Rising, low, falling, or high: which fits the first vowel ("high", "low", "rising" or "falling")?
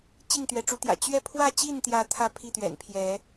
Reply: falling